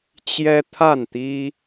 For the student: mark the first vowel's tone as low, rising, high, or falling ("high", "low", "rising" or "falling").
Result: high